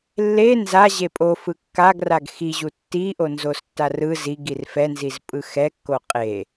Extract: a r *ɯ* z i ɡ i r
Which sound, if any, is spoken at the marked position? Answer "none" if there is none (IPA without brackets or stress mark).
ɯ